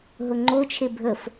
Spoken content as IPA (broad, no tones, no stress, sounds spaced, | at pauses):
ɦ ʊ ŋ͡ǃ o t͡ʃʰ e bʱ ə f